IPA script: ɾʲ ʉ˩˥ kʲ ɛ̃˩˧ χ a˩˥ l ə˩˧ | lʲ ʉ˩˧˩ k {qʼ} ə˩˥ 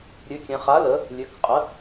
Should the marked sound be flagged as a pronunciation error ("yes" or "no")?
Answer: no